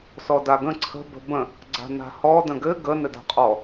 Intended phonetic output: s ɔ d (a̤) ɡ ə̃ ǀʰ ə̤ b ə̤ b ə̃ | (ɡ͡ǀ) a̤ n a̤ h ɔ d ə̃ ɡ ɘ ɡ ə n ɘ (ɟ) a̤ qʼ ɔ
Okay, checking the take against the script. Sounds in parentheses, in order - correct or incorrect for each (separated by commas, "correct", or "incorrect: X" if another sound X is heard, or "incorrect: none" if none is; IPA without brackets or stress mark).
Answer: incorrect: a, correct, incorrect: d